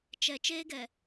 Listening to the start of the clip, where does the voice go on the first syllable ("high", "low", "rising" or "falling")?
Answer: low